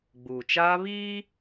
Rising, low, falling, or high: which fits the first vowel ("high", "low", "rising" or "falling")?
low